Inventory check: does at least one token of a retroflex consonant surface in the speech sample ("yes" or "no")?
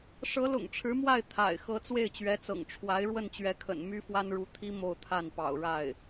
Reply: yes